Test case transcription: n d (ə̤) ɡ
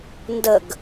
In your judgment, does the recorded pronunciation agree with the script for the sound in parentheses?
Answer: no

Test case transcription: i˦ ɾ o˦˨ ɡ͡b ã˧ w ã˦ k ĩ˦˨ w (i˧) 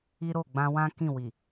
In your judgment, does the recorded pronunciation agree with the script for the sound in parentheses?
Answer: no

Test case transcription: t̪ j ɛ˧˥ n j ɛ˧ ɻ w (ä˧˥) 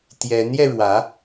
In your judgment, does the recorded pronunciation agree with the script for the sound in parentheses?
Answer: yes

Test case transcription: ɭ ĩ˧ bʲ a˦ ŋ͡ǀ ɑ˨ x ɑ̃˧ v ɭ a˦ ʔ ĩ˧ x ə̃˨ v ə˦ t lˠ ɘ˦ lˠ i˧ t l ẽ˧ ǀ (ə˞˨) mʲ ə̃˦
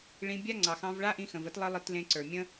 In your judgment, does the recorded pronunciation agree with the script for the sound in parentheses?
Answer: yes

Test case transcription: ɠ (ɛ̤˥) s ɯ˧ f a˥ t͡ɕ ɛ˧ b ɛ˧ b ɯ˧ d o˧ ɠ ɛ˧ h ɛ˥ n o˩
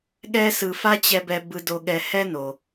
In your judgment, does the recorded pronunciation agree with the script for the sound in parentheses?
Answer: no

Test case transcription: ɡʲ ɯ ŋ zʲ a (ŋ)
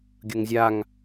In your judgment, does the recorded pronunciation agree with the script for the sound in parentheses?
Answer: yes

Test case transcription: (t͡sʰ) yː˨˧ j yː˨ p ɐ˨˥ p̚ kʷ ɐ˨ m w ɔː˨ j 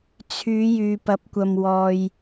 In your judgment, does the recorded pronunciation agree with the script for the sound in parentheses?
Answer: yes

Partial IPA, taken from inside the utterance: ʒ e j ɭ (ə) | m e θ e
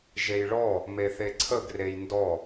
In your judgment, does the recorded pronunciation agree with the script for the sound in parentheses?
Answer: no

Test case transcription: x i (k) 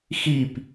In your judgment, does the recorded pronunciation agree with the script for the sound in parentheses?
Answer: no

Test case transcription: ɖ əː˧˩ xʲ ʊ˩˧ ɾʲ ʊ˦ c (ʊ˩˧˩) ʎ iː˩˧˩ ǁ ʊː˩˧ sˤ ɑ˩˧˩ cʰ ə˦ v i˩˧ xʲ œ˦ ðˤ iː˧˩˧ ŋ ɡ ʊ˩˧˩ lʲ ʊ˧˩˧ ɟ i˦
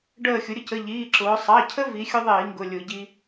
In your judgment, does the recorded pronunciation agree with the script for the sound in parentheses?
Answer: no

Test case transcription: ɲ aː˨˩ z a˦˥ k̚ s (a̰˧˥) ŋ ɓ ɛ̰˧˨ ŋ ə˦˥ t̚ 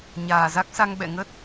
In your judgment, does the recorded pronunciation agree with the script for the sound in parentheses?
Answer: no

